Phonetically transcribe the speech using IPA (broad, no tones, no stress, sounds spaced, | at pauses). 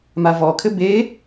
m a v ɔ kʰ ɘ b e